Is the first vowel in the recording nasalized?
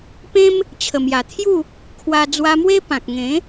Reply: yes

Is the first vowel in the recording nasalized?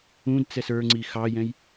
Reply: yes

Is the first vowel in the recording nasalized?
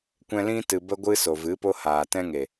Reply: yes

